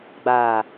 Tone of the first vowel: low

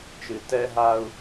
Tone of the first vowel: low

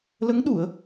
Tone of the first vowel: rising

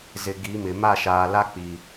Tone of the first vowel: low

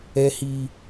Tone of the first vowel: high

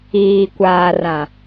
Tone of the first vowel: low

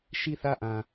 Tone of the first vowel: falling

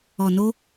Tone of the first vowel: low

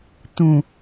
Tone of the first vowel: low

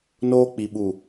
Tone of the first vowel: high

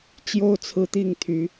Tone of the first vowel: high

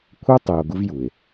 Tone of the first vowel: high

